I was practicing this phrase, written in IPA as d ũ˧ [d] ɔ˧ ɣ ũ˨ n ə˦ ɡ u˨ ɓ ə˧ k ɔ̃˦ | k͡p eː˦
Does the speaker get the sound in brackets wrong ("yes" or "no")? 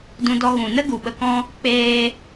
no